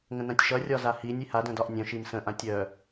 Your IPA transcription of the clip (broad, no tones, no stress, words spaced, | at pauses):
ŋə̃nãtʲʃʌ rʲɒzahinʲ iha dœ̃dɒʔnʲœ̃ ʃimsə̃ ʔãtʲœ